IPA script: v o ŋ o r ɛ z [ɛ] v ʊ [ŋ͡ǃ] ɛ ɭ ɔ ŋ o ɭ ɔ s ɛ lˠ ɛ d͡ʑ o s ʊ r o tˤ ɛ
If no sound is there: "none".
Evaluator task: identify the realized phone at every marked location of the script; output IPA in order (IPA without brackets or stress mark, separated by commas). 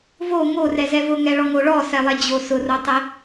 ɛ, ŋ